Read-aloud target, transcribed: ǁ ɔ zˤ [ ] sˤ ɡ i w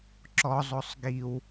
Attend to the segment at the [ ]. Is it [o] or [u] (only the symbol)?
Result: o